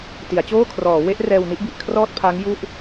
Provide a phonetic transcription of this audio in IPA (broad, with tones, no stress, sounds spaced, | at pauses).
t i˩˦ a̯ t͡ɕ oː˥˩ kʰ r ɔː˩˦ w e˦˥ ʔ r ɛː˧ w n i˦˥ ʔ b i˨˩ ʔ kʰ r ɔː˥˩ t̚ pʰ a˦˥ ŋ j u˥˩ ʔ